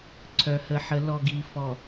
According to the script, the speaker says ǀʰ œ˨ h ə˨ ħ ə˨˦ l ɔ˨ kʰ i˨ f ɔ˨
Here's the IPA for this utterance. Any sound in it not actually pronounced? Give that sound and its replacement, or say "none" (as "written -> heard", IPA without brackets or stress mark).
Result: kʰ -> ɡ